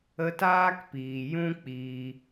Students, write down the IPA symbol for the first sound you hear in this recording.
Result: ə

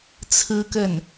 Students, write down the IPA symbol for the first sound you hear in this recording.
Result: t͡sʰ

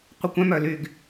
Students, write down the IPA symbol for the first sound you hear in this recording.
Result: qʷ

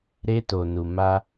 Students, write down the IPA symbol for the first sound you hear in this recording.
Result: ɾ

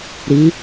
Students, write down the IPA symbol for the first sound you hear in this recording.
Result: ɾ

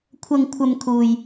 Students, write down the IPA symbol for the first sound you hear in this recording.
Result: kʷʰ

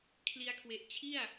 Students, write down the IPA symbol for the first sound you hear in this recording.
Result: kʰ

